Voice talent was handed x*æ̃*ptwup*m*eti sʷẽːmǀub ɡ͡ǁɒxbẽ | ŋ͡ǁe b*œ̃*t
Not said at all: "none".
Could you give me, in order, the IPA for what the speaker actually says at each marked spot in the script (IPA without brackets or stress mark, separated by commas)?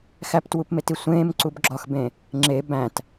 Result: æ, m, æ̃